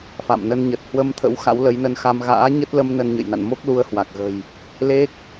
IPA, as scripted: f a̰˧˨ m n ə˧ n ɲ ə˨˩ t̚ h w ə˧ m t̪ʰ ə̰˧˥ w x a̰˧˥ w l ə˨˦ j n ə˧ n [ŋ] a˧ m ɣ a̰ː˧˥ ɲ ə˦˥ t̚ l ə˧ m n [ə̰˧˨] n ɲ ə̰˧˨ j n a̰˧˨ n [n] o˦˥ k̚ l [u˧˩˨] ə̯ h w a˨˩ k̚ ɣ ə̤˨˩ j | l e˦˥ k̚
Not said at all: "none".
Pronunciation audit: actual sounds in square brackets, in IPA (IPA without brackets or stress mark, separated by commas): x, ə˧, m, u˧